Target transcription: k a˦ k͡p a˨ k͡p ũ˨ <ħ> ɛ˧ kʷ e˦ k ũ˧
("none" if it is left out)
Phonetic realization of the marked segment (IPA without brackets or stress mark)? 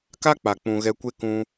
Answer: ɣ